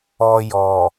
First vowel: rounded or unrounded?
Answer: rounded